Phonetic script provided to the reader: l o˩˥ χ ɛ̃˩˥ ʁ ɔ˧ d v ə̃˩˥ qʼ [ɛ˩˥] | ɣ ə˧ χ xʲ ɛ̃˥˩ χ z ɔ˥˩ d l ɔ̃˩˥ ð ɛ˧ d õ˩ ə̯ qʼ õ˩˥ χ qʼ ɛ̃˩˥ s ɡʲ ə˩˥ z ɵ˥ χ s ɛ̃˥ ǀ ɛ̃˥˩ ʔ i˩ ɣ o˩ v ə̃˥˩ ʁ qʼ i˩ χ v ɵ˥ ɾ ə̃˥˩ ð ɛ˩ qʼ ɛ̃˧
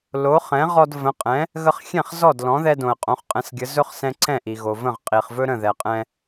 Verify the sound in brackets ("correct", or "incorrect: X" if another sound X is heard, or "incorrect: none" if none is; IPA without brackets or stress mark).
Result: incorrect: ɛ̃˩˥